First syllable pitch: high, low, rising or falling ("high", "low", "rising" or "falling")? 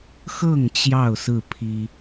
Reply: falling